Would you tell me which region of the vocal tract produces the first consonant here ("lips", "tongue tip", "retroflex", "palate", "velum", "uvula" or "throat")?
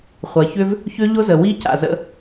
uvula